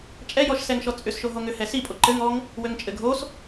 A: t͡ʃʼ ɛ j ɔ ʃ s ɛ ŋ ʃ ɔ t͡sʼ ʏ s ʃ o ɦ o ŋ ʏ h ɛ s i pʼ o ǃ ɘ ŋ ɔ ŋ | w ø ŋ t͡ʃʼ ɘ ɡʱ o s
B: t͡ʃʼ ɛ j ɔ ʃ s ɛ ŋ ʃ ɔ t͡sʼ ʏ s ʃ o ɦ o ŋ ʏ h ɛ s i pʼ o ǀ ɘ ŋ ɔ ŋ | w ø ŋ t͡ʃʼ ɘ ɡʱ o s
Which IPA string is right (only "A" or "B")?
A